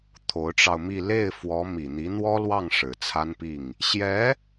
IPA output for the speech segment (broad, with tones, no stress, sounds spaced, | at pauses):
t̪ʰ o˧˥ ʊ̯ ʈ͡ʂ ɑ˧ ʊ̯ m i˥˧ l e˥˩ ɪ̯ f w ɔ˧˥ m i˨˩ n̪ i˧˥ n̪ w ɔ˥ l w ɑ˥˩ ŋ ʂ ɻ̩˨˩ t͡sʰ a˥ n p i˥˩ ŋ | ɕ j ɛ˧˥